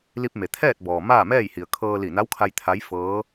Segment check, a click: absent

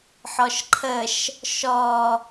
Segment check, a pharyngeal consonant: present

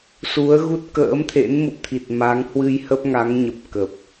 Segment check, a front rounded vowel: absent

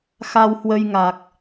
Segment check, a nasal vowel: absent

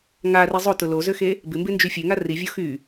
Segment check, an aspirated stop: absent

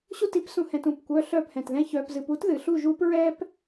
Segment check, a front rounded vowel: present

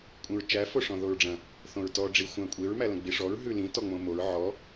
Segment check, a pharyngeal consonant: present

